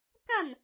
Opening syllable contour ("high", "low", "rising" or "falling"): falling